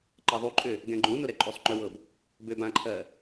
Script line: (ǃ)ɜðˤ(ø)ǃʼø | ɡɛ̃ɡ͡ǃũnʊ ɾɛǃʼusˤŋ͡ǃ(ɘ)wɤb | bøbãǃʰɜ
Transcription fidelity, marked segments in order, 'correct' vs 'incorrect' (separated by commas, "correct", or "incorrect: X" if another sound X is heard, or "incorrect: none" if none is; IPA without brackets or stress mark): correct, incorrect: u, incorrect: ø